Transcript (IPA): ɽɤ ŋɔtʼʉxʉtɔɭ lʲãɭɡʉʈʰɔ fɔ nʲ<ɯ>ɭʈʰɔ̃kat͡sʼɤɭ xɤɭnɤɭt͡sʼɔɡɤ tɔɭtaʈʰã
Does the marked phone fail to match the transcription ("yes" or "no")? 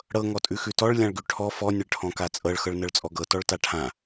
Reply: yes